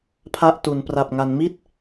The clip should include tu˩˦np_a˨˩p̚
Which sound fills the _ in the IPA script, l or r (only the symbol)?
r